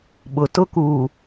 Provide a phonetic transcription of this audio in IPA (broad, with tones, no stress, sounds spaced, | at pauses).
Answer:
ɓ ʊ˨ t ʊ˦ k u˨